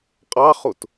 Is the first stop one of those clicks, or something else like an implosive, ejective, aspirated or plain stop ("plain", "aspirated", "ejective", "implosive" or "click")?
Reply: ejective